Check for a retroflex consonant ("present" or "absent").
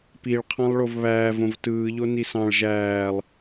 present